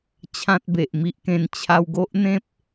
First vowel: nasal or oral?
nasal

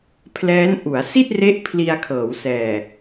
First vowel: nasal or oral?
oral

